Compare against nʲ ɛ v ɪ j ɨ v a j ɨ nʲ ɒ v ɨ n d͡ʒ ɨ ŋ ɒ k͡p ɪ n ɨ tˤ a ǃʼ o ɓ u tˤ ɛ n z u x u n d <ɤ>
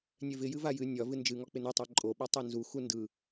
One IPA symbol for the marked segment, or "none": ɯ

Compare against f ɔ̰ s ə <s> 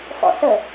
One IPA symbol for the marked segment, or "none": none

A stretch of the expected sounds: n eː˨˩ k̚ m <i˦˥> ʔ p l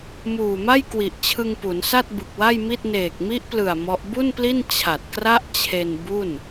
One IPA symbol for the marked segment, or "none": i˦˥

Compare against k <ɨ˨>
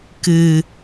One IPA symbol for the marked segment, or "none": ɨ˨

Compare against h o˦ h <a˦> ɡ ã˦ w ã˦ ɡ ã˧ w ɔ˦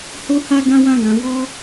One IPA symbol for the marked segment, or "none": a˦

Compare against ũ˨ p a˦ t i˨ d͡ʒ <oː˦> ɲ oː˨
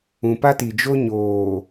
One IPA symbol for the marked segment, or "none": o˦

